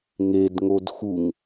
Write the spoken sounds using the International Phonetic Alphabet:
ŋed ŋodxuŋ

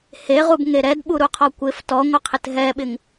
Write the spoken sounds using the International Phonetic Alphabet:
heʁubŋe ɾɛdɓuɾuqʰɔ kʷɪf tɔŋʷɪqʰɪt ɦɛɓɪŋ

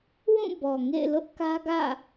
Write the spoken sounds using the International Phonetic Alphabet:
wũ˦˨ bɔ˨ŋḛ˦˨ɪ̯ lʊ˦ʔkä˦ɡä̰˦˨

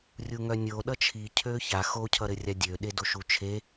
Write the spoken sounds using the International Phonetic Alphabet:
rʲuŋœnʲo ɗʌt͡ʃʰi cʰøça xo cʰʌɾɘrʲadʲø ɗedoʃut͡ʃʰe

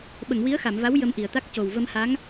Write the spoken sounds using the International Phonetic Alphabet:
ɓə˨˩˨ŋwi˧˥ə̯xa˨˩˨mva˧˥w jə˧mʔi˨˩˨ə̯t̪a˦˥k̚ co˨˩w və˧mha˧˥ŋ

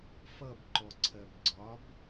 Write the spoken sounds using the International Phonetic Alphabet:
fʌbǃɔǀʰɜb ɡ͡ǀɒb

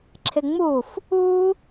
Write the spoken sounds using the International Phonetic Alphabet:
ǁʰɪŋ͡muf | u

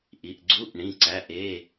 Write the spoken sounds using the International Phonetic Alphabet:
ʔi˩˧˩ʔɡ͡ǀu˧˥˧ʔɳĩ˩˧˩ ǀæ˩˧˩ʔe˩˧˩

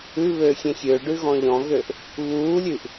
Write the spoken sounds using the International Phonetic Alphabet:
ʉβøː xʲẽxʲøɖʉɣɔ̃ ʎɔ̃ɣøʔ | βuːlʲʉʔ

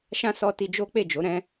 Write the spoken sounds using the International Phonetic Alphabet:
ʃã˦sɔ˧ti˧ d͡ʒo˦k͡pe˦˨d͡ʒo˨˦ ɾɛ̃˦

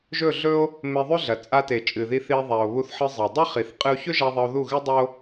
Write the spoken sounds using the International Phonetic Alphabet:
ʒɵ˦˨ɮɵ˦o̯ | me˧ðˤʉ˦ɮɐ˨ t͡sʼa˧te˨ t͡ʃʼɨ˨ði˧θi˧e̯ ðˤa˨o̯βu˧θħɨ˧ zˤɐ˨ dˤɐ˦χi˨θ qʼɨ˧o̯çɵ˦ʒa˧ ðˤɐ˧o̯ðu˦˨ɣɨ˦dˤo˦

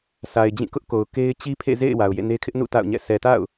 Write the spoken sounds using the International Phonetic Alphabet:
sa˨ɪ̯d͡ʑĩ˦˨ kʊ˦ʔko˨ʊ̯ ke˦ɪ̯ t͡ɕi˦pʰḛ˦˨zḛ˦˨ɪ̯ wa˨ʊ̯jḛ˦˨ne˦ kʰɪ˦ʔnṵ˦˨ ta̰˦˨ʊ̯ɲɛ̰˦˨ sɛ˨ta̰˦˨ʊ̯

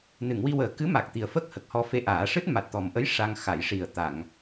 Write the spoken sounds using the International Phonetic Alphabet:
nɨ˨˩˨ŋwi˧wəː˨˩ kɨ˧˥ma˨˩k̚ t̪i˨˩ə̯fə˦˥k̚ hə˨˩k̚hɔ˧fe˧ʔaː˨˩˦ ʂɨ˦˥t̚ma˨˩t̚t̪ɔ˨˩mʔə˧˥j ʂa˧ŋ xa˨˩˨jʂi˨˩ə̯ t̪a˨˩˨ŋ

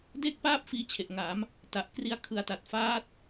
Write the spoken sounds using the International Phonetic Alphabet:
de˥˩k̚paː˥˩p̚ fiː˧t͡ɕʰe˨˩ʔŋa˩˦m | ta˨˩ʔkri˦˥a̯kʰɯ˨˩a̯ta˨˩t̚ faː˦˥t̚

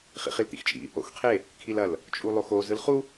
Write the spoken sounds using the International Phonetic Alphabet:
χḭχilt̪ḭxt͡ʃʼḭ | o̰xqʰe | kʰilɐl | t͡ʃʼulˠoxo zɯlχu

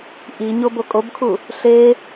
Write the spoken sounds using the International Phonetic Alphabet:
ʔi ɲobokʼobkʰu | ɬe

